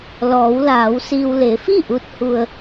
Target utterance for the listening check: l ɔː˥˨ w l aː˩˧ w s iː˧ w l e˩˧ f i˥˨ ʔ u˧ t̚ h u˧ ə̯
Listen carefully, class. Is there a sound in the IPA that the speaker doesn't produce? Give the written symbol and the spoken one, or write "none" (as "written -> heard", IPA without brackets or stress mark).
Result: ɔː˥˨ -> ɔː˩˧